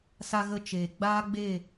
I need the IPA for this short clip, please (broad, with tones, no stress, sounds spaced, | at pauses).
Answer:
s a˧ ɣ ə˧ t͡ʃ eː˨ ɡ͡b aː˦ ɡ͡b e˦˨